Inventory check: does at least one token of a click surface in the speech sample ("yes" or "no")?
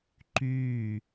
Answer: yes